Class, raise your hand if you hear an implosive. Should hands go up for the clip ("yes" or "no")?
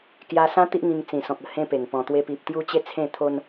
no